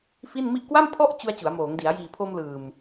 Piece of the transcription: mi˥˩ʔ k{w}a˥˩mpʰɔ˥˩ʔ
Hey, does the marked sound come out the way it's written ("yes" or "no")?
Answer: yes